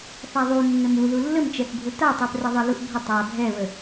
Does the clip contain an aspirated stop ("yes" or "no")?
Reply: no